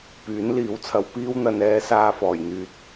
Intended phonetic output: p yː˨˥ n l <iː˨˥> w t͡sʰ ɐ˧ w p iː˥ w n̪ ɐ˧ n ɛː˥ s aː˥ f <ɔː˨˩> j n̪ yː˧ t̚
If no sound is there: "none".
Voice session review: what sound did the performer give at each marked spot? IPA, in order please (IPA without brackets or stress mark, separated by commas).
iː˨˥, ɔː˨˩